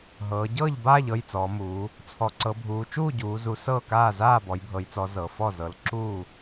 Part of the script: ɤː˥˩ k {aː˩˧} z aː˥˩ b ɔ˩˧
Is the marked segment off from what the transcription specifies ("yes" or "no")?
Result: yes